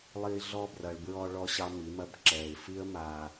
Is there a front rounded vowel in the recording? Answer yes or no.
no